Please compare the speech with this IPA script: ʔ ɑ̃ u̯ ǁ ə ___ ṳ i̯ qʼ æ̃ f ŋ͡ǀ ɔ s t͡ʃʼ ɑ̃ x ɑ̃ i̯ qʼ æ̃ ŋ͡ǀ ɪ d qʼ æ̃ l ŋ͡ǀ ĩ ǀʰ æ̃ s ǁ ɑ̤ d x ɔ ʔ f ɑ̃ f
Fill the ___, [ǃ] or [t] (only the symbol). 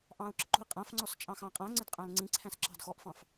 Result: ǃ